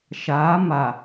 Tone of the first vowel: rising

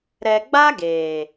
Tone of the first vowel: low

